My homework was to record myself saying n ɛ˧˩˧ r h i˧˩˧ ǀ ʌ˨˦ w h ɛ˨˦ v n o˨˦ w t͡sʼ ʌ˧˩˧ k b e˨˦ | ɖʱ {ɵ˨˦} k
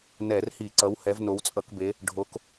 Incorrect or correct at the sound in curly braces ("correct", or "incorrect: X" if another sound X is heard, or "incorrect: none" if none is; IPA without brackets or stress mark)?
incorrect: o˨˦